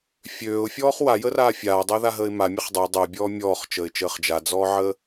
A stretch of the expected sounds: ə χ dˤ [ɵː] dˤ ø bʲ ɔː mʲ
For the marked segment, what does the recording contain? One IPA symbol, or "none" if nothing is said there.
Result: əː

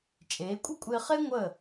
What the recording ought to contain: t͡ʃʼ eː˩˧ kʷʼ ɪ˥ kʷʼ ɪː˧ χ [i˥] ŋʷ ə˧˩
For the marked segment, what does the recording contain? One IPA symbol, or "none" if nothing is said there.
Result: e˥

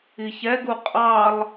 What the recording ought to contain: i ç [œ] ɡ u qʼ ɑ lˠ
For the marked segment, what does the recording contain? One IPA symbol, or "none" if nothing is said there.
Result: ɛ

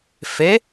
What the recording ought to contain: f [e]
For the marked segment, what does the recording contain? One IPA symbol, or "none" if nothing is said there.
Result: e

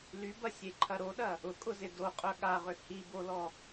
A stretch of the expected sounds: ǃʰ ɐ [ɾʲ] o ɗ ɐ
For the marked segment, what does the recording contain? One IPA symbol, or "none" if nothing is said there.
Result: ɾ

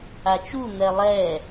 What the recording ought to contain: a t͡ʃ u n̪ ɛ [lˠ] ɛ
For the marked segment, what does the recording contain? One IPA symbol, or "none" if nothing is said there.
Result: lˠ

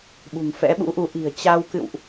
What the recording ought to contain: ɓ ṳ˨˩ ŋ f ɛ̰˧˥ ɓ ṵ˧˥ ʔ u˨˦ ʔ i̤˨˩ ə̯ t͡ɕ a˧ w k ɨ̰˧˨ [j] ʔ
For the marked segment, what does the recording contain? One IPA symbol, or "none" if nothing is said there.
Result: w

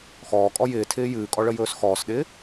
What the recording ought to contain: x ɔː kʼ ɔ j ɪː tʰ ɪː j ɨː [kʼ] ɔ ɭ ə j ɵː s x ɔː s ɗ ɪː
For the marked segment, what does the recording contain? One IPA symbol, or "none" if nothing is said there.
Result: kʼ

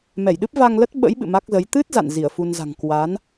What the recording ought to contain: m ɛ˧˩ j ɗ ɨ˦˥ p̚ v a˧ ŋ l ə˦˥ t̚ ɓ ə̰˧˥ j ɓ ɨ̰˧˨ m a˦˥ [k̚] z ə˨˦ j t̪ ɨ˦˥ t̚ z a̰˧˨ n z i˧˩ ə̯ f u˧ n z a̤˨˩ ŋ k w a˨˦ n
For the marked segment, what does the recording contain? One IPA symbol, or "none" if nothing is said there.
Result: k̚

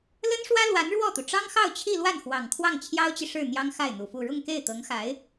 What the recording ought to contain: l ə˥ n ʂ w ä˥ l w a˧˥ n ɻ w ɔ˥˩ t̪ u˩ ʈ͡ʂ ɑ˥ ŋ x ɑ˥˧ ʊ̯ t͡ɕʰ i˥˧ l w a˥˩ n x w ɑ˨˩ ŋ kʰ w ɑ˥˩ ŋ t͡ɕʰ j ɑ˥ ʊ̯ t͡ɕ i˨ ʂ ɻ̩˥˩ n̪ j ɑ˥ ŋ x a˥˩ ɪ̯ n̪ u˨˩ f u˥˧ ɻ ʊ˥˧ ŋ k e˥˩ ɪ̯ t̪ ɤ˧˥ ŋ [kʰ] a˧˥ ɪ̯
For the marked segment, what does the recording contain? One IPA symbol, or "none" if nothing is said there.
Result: x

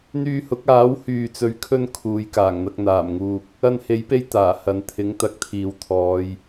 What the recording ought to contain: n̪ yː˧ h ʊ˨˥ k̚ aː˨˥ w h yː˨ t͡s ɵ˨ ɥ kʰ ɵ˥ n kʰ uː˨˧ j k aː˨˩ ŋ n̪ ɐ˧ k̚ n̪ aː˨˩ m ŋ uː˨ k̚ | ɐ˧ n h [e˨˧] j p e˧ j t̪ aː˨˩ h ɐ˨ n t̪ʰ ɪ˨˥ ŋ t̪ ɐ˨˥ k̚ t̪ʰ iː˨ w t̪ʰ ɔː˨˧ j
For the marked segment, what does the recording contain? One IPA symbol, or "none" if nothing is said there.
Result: e˨˥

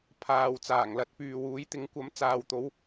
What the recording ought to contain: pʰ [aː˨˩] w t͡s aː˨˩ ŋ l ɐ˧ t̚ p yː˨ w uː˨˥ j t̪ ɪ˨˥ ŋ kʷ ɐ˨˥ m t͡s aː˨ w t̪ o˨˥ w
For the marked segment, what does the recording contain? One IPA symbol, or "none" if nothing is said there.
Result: aː˨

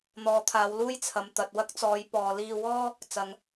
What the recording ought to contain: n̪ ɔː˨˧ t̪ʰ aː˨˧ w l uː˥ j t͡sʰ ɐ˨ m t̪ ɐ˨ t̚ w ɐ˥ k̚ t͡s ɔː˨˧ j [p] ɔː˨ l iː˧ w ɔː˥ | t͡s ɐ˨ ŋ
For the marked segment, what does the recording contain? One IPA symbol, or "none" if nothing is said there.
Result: p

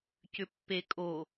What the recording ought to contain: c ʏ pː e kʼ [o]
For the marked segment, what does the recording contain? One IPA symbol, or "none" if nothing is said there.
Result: o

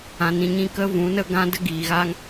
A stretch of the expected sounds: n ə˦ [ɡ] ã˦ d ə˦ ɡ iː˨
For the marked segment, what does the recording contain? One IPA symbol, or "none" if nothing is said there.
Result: ɡ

